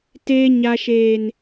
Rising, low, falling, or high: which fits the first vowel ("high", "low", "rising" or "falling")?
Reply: high